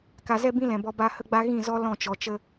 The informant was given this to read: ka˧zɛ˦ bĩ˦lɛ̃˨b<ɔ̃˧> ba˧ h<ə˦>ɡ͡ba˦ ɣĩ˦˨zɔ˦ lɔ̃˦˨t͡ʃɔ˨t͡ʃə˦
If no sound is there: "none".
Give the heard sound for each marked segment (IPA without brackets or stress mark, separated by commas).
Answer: ɔ˧, ə˦